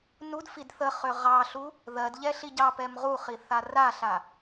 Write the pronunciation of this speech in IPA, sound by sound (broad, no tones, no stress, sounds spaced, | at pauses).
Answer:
n u d f i d θ ə χ ø ʁ ɑ ɬ u | ð ɜ d ʎ ɛ ɬ i ɟ ɑ p ɛ m ʁ u χ i θ a r a ɬ a